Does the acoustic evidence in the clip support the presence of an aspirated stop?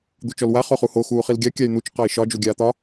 no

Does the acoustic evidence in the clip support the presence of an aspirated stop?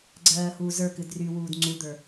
no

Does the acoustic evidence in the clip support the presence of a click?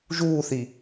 no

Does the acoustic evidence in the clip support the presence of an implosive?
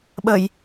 yes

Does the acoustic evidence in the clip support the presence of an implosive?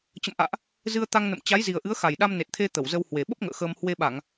yes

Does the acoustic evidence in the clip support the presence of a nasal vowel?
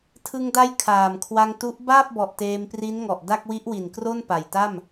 no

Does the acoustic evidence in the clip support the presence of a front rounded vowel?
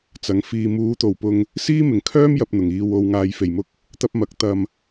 yes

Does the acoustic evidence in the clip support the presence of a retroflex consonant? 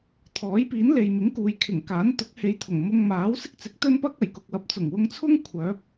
no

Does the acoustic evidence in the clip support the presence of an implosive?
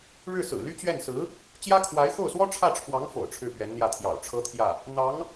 no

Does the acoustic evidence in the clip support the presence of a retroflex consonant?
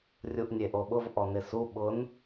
no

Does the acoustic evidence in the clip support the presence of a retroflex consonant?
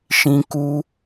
no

